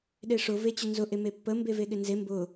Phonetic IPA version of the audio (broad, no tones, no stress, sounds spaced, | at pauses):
ɗ e ʂ ʊ v e t͡ɕ ɵ n z ʊ ʔ e m e pː ə m b e v e ɠ ɪ n z e m b ʊ